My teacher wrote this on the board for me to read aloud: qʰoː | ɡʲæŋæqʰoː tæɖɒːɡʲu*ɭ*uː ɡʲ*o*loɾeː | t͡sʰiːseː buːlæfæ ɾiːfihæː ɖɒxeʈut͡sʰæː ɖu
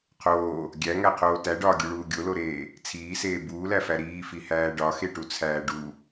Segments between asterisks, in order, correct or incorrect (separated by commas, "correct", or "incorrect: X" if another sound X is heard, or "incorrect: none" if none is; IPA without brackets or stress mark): correct, correct